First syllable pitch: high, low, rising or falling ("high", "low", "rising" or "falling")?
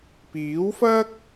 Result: rising